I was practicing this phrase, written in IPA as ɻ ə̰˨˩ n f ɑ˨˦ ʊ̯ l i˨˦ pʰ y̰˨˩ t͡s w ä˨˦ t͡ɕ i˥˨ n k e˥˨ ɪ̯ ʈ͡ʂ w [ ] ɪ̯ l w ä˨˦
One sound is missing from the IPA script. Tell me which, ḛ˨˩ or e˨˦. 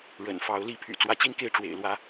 ḛ˨˩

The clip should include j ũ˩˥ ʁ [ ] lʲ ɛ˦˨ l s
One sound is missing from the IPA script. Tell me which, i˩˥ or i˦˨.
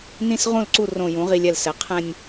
i˦˨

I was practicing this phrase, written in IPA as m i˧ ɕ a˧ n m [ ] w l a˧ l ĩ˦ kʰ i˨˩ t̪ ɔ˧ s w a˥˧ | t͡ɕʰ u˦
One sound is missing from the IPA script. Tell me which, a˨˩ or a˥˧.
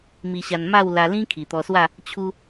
a˥˧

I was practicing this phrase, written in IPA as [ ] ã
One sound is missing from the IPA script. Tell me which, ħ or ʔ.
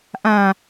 ʔ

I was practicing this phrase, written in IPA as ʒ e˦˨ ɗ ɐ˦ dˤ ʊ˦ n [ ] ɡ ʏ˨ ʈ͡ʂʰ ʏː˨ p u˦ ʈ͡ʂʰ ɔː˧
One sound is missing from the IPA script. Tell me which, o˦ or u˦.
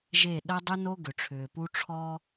o˦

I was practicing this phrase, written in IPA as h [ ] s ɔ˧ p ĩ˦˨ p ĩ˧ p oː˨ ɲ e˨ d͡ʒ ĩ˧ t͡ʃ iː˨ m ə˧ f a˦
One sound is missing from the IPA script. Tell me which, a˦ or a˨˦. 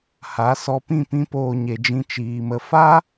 a˨˦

